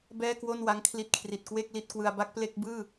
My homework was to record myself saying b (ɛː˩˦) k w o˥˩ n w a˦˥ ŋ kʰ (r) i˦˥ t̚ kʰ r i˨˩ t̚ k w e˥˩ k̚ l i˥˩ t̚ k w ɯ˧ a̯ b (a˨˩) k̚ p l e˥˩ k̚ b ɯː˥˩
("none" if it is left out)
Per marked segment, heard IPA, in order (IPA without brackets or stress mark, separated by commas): ɛː˥˩, l, a˥˩